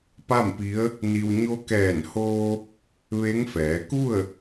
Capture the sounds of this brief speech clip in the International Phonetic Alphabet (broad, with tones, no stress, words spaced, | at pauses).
pa˥˨mpi˧˥ə̯ | ni˧w ɲo˧˥kɛː˧˩nhoː˧ | ʋe˧˥ŋfɛː˩˧ ku˥˨ə̯